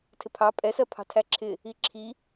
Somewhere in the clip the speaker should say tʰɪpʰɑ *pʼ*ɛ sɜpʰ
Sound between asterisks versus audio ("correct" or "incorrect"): correct